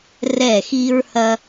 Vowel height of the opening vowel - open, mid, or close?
mid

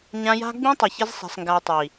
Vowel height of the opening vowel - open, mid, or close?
open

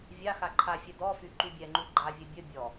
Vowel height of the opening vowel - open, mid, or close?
open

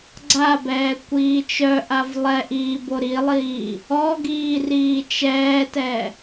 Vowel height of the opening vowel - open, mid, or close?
open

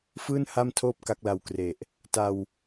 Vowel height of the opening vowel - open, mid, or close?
close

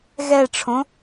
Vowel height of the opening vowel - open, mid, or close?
mid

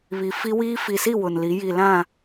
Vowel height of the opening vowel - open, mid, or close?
close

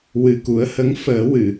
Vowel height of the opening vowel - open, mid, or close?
close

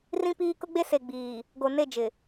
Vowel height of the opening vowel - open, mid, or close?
close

